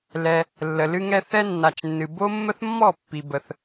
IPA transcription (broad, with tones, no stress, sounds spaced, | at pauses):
l ɛ˧ | lː ə˨ l ɨ˧ ŋ ɛ˧ θ ɛ˦ nː a˨ t͡ʃ nː ɨ˨ b o˦ mː ə˦ θ mː ɔ˦˨ pː i˨ b ə˨ θ